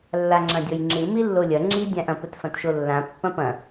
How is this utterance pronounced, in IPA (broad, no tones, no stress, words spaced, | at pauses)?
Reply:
lːaŋ͡ǁɐ̃dʲɔjŋ͡ǁɨ milːolʲɐ ŋ͡ǁi dʲãʔɐ̃ pɘtfɐ̃tʃolːã pːɐ̃pɐ̃